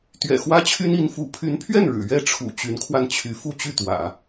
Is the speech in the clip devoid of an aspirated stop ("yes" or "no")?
no